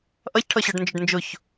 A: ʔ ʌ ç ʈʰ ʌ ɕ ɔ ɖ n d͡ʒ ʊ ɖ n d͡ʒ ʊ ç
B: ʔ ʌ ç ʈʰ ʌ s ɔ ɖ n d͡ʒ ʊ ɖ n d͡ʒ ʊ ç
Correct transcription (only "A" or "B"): A